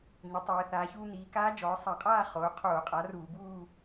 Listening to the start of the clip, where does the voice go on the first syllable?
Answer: rising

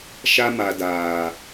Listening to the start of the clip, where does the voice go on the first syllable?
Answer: high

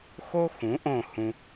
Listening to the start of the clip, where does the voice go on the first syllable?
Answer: high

